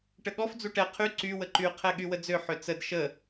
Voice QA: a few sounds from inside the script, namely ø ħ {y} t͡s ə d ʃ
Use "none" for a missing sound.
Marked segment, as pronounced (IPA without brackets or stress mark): ø